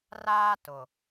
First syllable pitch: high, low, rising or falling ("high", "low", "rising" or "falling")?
high